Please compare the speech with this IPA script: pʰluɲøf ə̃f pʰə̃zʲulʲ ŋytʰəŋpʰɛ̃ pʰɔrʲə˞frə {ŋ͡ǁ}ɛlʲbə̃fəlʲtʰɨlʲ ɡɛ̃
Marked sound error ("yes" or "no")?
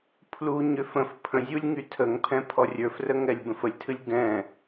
yes